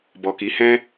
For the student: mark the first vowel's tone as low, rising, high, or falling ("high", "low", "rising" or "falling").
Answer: low